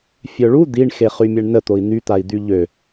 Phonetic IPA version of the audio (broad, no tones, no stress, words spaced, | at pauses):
fʲœɭu d̪iɳ xeχymʲɛɳnə t̪oi̯n̪y t̪ai̯d̪yʎø